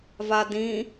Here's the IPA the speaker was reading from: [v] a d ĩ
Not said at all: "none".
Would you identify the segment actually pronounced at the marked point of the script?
v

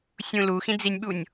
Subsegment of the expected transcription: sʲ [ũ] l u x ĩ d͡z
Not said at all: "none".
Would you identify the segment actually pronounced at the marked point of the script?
ũ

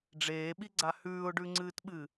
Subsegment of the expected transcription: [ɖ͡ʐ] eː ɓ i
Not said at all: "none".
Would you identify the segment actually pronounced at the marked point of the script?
ɖ͡ʐ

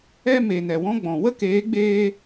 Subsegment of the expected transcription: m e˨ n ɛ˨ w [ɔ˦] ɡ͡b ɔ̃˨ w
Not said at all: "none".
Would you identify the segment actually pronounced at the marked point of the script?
ɔ̃˦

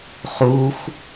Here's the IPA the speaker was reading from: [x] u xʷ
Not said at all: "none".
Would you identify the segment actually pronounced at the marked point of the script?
χ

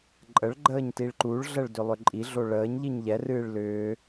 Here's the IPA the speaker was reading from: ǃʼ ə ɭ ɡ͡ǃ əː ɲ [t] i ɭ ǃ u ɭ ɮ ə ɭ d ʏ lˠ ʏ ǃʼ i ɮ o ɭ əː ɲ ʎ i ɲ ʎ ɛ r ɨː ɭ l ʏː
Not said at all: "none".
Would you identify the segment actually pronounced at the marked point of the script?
t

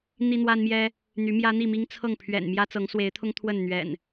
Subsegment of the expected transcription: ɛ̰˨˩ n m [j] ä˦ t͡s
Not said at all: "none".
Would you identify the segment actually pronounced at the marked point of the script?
j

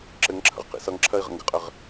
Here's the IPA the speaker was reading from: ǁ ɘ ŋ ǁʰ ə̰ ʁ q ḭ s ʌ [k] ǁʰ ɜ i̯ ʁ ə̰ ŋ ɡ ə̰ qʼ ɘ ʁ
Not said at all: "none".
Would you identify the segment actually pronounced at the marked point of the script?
ŋ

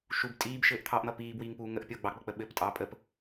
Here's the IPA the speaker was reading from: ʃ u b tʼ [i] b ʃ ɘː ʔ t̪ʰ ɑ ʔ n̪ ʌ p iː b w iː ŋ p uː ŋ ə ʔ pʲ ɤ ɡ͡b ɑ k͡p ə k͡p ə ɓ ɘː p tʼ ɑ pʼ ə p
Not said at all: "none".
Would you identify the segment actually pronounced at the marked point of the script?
iː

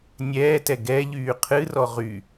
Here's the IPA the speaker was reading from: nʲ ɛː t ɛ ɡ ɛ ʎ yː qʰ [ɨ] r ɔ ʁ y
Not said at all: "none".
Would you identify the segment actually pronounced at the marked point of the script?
ɨ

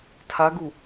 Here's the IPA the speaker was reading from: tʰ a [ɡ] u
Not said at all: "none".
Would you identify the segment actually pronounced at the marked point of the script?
ɡ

